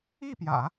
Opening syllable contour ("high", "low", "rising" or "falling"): falling